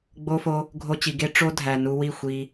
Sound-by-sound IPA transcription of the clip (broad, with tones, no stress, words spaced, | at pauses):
ɡ͡bo˧fo˧ | ɡʱo˧t͡ɕi˨ ɡe˦ʈ͡ʂo˦ dʱæ˨nu˧wi˦˨ xʷi˧